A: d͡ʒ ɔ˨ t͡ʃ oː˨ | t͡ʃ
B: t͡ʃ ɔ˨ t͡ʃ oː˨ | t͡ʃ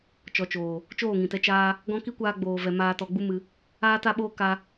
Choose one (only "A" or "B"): B